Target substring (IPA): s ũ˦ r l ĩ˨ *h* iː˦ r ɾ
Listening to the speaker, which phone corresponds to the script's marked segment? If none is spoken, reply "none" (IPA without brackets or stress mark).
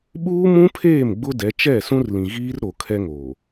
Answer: ɣ